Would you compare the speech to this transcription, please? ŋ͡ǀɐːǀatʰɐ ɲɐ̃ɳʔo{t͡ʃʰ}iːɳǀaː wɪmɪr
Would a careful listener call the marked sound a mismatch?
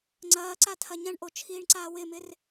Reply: no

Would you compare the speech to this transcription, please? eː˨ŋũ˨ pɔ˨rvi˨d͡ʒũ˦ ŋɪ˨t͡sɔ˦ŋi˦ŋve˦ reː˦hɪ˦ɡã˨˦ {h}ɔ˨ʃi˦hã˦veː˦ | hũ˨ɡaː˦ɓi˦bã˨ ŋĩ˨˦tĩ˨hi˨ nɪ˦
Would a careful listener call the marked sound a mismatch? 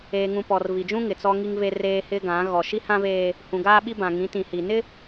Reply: yes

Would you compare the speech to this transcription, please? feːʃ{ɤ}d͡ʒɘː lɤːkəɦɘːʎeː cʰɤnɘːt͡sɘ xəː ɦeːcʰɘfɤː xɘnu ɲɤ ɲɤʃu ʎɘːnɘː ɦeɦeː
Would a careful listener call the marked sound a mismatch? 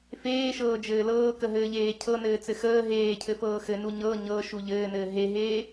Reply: yes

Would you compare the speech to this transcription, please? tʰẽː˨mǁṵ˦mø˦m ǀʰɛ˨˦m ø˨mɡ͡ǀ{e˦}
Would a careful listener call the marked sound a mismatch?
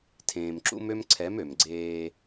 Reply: yes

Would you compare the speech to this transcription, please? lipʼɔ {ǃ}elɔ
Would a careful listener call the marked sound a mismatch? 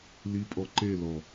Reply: no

